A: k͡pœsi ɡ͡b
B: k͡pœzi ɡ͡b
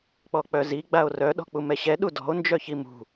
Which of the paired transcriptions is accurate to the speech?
B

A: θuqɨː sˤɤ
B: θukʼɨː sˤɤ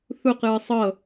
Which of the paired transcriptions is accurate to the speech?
A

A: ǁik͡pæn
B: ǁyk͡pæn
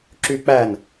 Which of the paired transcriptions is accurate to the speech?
B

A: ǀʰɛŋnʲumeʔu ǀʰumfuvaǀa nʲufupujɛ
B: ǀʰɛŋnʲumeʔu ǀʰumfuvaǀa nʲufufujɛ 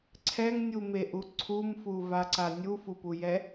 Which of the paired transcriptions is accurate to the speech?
A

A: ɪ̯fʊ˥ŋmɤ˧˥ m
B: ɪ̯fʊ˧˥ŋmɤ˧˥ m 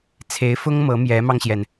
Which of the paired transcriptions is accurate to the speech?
A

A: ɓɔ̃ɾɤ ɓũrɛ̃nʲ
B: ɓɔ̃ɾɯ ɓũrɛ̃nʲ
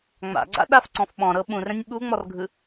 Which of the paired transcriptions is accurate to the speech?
A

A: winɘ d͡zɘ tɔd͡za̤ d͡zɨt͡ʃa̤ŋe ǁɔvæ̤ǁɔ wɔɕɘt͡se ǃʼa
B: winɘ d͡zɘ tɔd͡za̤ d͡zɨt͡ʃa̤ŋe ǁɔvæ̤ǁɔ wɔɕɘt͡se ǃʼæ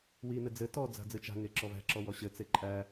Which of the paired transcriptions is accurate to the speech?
B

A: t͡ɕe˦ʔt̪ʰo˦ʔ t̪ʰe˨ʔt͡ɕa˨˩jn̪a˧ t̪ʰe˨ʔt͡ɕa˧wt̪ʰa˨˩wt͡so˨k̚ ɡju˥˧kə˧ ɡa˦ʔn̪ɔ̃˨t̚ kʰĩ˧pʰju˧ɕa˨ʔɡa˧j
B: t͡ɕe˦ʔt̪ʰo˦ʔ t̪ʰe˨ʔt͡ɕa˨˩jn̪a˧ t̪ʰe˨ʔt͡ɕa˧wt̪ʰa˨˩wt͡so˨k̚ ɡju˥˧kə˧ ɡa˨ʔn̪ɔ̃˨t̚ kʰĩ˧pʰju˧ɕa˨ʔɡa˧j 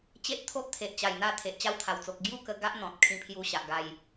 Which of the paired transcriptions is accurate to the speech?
A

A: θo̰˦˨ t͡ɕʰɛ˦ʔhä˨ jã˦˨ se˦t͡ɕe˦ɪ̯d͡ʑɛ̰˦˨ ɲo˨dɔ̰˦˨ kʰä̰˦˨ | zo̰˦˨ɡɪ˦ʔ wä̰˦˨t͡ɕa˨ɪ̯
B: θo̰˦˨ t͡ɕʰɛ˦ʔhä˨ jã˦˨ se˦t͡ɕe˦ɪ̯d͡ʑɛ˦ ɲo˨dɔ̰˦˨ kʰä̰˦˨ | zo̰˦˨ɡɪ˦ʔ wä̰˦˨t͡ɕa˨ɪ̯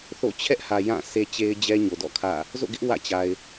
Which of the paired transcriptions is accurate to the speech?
B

